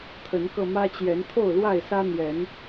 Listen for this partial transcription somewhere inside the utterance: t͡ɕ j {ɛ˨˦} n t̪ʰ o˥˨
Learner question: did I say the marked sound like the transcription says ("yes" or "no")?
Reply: yes